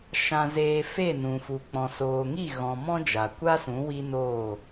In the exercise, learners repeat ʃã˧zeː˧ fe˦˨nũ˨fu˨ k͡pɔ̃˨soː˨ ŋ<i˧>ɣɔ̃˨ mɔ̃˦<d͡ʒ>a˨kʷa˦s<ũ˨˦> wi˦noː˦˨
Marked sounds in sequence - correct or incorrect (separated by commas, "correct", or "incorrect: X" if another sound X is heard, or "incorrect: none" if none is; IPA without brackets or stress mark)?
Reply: incorrect: i˦˨, correct, correct